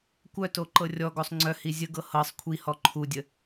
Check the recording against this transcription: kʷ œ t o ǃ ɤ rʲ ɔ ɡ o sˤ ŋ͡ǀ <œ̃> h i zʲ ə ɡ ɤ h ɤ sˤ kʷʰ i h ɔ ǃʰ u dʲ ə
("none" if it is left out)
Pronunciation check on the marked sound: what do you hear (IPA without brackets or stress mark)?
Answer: œ